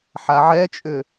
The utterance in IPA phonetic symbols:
ħaʕɛt͡ʃʼʏ

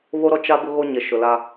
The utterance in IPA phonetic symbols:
βo˦ɾɔ˦ t͡ʃa˦ bʊ˦ɣo˦ɲe˨ ʃʊ˨la˦

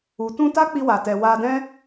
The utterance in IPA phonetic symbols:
u˨ tũ˧ ta˦k͡pi˧wa˨tɛ˨ wa˧dɛ̃˦

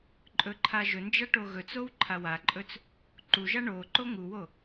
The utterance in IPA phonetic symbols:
ǃʼɵǃʰaʒɵnd͡ʒa ʈoɣɵt͡sow ǃʰawaǃʼɵt͡s | ǃuʒa ɳoǃo ŋuwo

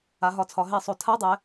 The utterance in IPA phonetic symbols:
a˩˧ɦɒ˨˩t͡sʰɒ˩˧ ɦe˧˩˧sˤo˨˩ tʰa˧˥˧dˤɛ˩˧

